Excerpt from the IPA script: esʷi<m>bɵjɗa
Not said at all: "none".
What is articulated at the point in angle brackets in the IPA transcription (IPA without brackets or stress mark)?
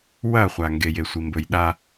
m